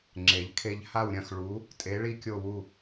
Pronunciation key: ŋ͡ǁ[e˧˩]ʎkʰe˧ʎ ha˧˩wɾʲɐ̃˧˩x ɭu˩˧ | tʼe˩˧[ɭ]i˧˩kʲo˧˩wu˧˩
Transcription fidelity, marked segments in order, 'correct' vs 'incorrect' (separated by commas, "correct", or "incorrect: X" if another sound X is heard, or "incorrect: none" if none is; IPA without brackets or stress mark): incorrect: e˩˧, correct